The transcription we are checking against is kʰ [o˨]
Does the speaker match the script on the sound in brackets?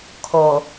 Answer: no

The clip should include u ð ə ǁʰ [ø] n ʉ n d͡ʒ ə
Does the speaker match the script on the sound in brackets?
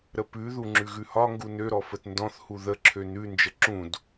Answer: yes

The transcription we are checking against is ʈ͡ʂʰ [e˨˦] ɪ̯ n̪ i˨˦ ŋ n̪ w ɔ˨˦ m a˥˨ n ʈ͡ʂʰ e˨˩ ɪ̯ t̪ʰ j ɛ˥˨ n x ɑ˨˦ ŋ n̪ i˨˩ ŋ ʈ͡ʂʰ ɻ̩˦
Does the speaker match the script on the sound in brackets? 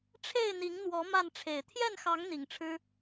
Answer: no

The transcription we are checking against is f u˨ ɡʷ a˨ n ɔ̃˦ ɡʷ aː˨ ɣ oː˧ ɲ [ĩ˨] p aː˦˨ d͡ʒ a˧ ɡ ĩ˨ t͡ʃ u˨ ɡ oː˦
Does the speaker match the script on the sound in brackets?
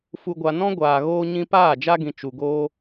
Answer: no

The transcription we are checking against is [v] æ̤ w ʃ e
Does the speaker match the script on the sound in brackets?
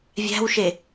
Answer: no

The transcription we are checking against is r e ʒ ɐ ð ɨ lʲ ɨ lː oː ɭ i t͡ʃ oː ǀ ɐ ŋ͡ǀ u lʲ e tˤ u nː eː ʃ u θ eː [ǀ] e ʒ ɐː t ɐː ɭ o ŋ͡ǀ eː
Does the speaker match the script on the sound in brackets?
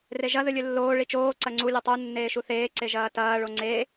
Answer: yes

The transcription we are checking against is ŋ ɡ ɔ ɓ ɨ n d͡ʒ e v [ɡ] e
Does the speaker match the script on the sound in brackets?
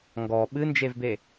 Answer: no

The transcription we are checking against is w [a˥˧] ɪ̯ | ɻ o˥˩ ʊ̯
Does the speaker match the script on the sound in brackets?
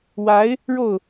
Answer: no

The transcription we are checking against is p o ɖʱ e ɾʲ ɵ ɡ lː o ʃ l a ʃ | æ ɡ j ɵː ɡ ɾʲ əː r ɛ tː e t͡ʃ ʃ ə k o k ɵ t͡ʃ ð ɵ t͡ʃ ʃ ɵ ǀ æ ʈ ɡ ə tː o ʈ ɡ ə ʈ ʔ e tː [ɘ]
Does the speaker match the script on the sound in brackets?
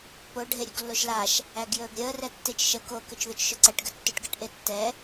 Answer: no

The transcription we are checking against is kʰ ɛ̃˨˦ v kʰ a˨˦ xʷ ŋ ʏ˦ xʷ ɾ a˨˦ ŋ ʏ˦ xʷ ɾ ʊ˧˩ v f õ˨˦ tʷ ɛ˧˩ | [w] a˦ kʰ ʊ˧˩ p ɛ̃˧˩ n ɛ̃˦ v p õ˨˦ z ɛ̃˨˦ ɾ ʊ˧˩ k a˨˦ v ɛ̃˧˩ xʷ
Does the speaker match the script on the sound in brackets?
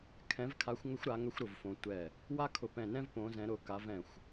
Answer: yes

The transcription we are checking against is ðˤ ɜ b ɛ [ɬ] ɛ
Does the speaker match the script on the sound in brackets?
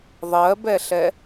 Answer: yes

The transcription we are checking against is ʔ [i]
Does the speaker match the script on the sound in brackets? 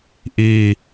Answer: yes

